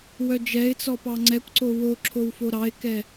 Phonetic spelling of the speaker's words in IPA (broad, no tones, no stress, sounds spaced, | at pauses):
w œ d͡ʒ ɛ ɪ̯ t͡s ɔ p ɑ ŋ͡ǀ ɛ kʷ ǀ o w o ǁʰ o w f o ɾ ɑ ɪ̯ k ɛ